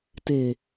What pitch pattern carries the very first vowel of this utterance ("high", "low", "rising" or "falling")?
low